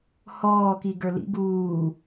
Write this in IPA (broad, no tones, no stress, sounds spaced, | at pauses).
h ɔː k i ɡ ə˞ l ḭ ɡ uː